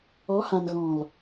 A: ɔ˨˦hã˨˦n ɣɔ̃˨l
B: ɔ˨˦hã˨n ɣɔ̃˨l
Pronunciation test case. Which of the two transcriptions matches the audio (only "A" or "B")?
B